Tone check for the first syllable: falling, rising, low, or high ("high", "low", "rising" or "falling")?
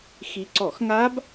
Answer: rising